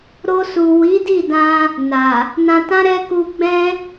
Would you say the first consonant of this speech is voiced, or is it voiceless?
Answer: voiced